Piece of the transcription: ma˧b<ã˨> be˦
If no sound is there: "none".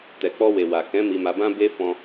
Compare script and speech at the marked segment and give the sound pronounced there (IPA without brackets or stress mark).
ã˦